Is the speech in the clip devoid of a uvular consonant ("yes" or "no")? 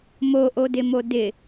yes